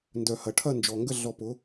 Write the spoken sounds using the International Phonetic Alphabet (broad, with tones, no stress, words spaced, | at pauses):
ndœ˨hɐ˨ ʈʰɐ˦˨nd͡ʒɔ˨ŋɡə˦˨ ɮɔ˧pʊ˨˦